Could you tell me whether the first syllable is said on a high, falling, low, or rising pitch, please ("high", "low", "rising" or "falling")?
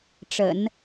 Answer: low